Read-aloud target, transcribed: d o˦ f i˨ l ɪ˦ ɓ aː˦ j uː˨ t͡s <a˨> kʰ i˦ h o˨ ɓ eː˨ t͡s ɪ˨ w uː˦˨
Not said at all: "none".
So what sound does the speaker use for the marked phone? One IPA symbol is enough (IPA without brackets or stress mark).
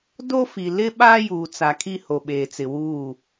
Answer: a˨